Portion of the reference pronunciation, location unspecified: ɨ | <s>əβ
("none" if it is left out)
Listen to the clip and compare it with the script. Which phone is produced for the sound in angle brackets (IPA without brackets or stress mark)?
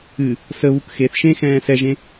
s